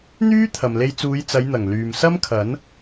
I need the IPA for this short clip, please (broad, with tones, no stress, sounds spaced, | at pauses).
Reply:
n̪ yː˥ t̪ʰ ɐ˨ m l e˧ j t͡s uː˨˧ j t͡s ɐ˨˧ j n̪ ɐ˨˩ ŋ l yː˨ m s ɐ˥ m kʰ ɐ˨˥ n